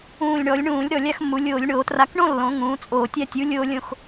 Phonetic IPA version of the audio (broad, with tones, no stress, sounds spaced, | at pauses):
ũː˨˩ lʲ ɳ ɔ˩˧ lʲ ɳ ũː˧˩˧ lʲ ɾ ɔ˨˩ lʲ a˥˧ x mː u˩˧ lʲ oː˧˩˧ lʲ ɳ oː˧˩˧ t r a˨˥ k ɳ õ˥˧ lː õ˩˧ ŋ ũː˩˧ t͡sʼ oː˨˩ tʲ a˥˧ tʲ u˨˥ lʲ oː˥ lʲ õ˥˧ x